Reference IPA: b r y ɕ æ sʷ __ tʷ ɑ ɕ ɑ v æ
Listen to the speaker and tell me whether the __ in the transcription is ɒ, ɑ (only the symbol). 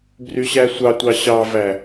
ɑ